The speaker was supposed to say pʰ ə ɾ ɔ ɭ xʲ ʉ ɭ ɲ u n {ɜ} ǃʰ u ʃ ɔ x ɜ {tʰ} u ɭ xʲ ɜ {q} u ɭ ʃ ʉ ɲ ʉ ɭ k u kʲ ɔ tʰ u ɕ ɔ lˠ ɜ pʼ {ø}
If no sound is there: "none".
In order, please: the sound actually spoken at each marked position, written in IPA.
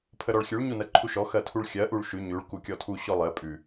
ɜ, tʰ, ʔ, ʉ

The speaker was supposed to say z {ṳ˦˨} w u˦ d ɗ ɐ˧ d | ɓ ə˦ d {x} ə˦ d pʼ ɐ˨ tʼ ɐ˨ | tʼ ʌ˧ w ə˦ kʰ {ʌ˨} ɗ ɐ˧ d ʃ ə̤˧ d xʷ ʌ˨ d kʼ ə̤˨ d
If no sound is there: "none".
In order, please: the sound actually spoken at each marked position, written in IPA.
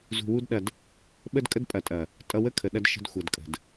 ṳ˧, kʼ, ə˨

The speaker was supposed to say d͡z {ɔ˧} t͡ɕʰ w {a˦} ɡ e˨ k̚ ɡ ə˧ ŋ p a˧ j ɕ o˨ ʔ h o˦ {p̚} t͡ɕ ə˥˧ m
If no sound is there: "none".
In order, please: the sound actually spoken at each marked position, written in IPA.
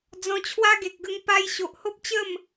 ɔ̃˧, a˦, p̚

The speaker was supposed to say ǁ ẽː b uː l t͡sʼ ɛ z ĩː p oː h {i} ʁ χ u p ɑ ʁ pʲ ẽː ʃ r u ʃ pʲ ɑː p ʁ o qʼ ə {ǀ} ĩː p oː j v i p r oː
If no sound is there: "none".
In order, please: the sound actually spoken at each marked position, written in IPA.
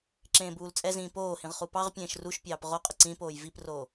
ĩ, ǀ

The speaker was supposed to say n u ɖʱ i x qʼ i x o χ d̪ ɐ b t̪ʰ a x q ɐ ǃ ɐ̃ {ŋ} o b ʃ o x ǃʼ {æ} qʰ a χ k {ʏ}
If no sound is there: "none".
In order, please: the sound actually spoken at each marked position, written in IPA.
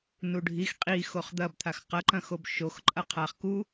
x, ɐ, u

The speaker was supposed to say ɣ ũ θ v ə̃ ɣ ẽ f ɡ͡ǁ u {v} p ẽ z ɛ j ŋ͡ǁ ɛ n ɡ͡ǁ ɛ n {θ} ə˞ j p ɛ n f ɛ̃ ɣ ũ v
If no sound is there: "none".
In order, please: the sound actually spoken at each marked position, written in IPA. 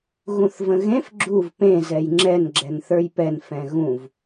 v, θ

